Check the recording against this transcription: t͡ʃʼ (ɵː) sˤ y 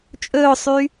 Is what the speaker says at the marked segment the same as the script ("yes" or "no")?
yes